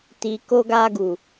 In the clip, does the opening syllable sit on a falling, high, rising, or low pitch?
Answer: low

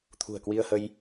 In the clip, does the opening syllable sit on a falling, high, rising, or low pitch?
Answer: low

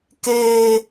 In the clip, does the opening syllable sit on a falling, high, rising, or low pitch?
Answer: high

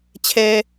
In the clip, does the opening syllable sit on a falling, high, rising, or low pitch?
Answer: high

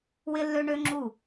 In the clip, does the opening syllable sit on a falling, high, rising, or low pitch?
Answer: high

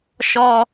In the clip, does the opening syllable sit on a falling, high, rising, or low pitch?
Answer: high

